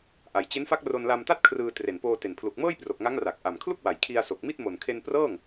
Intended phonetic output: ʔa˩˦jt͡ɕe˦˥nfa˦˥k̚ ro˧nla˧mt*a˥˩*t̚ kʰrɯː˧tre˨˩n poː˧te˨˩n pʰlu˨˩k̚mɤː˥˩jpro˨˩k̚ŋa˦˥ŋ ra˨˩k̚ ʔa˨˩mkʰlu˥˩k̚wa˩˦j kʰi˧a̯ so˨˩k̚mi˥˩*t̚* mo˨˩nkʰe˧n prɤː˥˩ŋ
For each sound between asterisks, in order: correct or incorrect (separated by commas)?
correct, correct